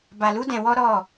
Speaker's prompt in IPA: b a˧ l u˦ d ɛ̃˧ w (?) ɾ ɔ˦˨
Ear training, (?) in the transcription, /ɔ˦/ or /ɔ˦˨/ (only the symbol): ɔ˦